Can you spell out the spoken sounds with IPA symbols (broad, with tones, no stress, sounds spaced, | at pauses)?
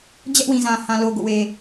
d͡ʑ ɛ˦ ʔ w ĩ˨ z ã˨ h ã˨ l o˨ ɡ o̰˦˨ w e˨